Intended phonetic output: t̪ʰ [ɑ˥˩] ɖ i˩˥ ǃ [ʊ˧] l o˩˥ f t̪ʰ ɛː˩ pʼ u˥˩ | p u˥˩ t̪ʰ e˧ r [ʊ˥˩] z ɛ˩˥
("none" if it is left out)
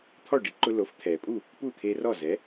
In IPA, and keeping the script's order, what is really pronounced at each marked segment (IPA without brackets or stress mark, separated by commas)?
ɔ˥˩, ʊ˧, ɔ˥˩